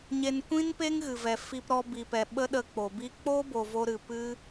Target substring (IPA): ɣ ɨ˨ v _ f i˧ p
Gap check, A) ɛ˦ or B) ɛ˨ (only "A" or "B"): B